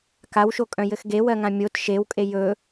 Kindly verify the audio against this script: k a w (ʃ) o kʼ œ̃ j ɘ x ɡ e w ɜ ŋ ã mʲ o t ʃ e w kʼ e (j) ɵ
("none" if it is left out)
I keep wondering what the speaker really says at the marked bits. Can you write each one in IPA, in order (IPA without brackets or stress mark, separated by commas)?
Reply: ʃ, j